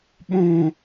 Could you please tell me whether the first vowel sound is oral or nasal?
nasal